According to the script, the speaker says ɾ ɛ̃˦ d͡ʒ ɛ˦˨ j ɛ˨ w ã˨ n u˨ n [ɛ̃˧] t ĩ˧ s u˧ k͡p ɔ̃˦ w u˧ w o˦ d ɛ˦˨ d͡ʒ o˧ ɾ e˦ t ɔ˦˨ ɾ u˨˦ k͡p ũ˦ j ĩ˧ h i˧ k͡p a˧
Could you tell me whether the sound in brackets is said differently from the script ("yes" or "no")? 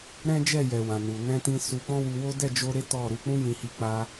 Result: no